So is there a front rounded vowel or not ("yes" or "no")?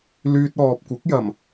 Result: yes